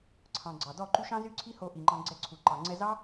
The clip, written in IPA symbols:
ǀʰ ɑ̃˨ ɡ͡ǀ ɑ˨ d ɔ˦˨ ǃ y˦ ʃ ɑ̃˦ z y˦ ǀʰ i˦ h o˧ ʔ i˨ ŋ͡ǃ ɑ̃˧ ɡ͡ǀ ɛ˦ ǀʰ u˨ ǃ ɑ˨ ŋ͡ǀ ɛ˧ z ɑ˦

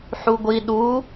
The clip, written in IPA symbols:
ħ u ɡʷ i ɗ u

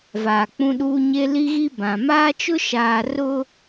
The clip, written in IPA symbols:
v aː˨ k͡p ũ˦ ɗ uː˦ ɲ e˦ l i˦ ɣ i˦ b ã˨ m aː˦ t͡ʃ ʊ˦ ʃ aː˨ r ʊ˦

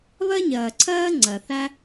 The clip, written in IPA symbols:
β ɜ˥ ɲ ɜː˩ ǀʰ ɜː˥ ŋ͡ǀ ɜ˩ θ æ˥

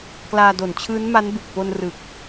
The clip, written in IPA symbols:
k l aː˧ d o˨˩ n t͡ɕʰ ɯː˦˥ n m a˦˥ n b u˨˩ k̚ p o˧ n r ɯ˨˩ k̚

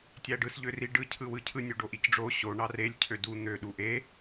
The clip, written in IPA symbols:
tʲ æ ɖ ɯ s ʎ ø r i ɖ ɯ cʰ ɯ w ɯ cʰ ɯ nʲ o ɖ o ʔ i c ɖ͡ʐ o ɕ o ɳ ɑ r e lʲ cʰ ø d u n̪ ø ɗ u ʔ e

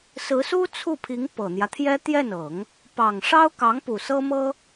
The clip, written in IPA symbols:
s ɹ̩˧˥ s u˥ t͡sʰ u˥˩ pʰ i˧˥ ŋ p ɤ˨˩ n̪ j ä˦ t̪ʰ j ɛ˥ t̪ j ɛ˥˩ n ɤ˨˩˦ ŋ | p ɑ˨˩ ŋ ʂ ɑ˥ ʊ̯ k ɑ˧˥ ŋ p u˨˩ s ɤ˥ m ɤ˥

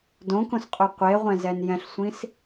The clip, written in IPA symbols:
d õ k õ s qʼ o qʷ e ʁʷ ɛ̃ z ɛ n j ɛ̃ ɬ sʷ ĩ s

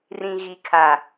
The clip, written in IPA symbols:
r ĩ˨ ɣ i˨ kʰ a˨

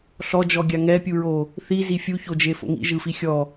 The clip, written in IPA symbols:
ɬ ɔ d͡ʒ ɔ ɡʲ a ŋ ɛ pʲ u ɹ o | θ i z i fʲ u ç o d͡ʒ e f o̰ ŋ ḭ ʒ ɯ f i xʲ ɔ

